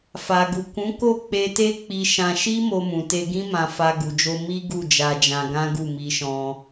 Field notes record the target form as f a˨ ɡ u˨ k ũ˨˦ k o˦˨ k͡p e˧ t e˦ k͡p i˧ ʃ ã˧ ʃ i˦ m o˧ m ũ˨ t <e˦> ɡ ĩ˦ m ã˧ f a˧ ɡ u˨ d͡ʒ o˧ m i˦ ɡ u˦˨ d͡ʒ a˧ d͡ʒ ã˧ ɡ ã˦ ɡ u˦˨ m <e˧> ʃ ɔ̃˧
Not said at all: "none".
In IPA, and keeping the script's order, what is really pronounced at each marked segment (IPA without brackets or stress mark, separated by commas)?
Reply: e˧, i˧